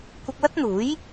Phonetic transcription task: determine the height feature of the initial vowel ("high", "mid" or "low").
high